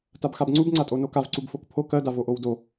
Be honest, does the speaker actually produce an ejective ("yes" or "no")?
yes